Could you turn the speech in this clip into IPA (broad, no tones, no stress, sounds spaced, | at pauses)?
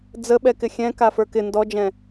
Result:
d͡z ə ɓ ɛ k ɪ xʲ ɛ̃ k a f ə˞ k ɪ n d ɔ d͡ʒ ɛ̃